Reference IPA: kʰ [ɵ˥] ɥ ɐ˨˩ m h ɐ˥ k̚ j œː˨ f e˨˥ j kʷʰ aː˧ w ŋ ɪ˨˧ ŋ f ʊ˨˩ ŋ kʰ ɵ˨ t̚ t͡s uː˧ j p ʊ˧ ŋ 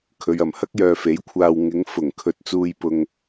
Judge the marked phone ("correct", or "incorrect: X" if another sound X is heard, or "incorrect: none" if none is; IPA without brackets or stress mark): incorrect: ɵ˨˧